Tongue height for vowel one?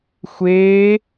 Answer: mid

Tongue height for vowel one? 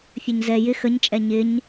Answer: mid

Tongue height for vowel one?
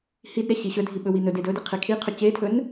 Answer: high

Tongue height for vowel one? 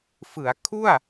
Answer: high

